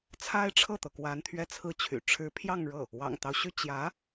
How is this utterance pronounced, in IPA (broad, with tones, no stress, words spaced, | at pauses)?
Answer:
t͡sʰa˥ɪ̯ʈ͡ʂʰɤ˥˩t̪ɤ˩kwa˧˥n t̪ʰɥɛ˥˧t͡sʰɹ̩˥˩t͡ɕʰy̰˨˩ ʈ͡ʂʰɻ̩˧˥pʰjɑ˥˧ŋɻɤ˥˩ | wɑ̰˨˩ŋt̪ɑ˦ʊ̯ɕy˥˩ t͡ɕjä˧˥